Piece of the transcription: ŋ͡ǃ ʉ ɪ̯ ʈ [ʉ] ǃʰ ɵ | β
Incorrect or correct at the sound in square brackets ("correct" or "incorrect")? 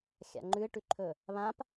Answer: correct